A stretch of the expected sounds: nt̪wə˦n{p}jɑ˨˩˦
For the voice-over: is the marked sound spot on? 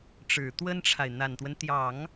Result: no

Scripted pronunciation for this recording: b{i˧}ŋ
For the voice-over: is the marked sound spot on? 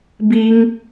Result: yes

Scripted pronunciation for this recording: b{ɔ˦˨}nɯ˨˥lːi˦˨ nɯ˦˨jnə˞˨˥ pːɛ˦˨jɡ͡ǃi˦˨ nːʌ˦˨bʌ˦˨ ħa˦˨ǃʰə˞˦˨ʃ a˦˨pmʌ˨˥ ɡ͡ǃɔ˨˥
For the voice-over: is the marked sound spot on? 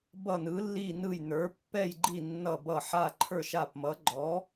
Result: no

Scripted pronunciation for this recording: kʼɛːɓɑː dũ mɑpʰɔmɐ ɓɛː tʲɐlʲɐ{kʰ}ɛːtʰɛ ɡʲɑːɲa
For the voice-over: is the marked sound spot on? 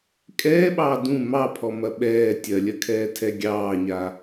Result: yes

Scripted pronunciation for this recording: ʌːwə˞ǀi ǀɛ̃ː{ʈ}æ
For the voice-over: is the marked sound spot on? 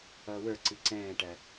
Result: yes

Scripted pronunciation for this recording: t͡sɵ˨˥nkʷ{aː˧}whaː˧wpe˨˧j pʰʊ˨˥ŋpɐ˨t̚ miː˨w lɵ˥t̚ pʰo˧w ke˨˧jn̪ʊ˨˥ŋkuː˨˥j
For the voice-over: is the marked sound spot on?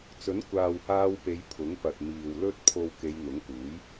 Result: no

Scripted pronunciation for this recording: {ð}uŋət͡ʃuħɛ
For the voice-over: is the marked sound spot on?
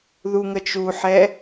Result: yes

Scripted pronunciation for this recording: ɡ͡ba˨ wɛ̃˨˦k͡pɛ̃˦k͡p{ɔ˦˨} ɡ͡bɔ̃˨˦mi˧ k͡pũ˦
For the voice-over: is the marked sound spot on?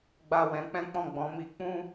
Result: no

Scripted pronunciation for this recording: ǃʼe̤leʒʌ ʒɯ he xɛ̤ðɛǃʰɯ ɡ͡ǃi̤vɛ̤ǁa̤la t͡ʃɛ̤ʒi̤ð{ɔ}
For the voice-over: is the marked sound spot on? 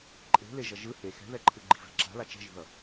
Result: no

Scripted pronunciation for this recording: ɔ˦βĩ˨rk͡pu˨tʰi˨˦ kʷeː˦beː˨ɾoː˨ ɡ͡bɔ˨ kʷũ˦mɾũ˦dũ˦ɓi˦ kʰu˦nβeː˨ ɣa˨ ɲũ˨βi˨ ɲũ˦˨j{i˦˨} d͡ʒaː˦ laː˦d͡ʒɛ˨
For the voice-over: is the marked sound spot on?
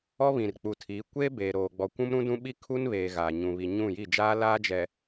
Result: yes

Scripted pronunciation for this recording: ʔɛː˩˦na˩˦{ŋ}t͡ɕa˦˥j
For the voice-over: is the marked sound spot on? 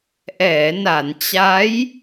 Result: no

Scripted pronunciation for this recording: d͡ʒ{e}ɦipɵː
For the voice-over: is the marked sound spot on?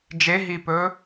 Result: yes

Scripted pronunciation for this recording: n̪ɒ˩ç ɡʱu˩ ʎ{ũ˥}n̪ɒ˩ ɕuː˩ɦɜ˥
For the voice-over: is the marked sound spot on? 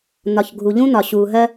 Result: yes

